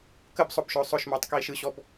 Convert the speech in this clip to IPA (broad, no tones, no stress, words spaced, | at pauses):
kəb sˤʊbʃʊː sˤʊʃmʊːtˤkiːʃ ɯɕɔb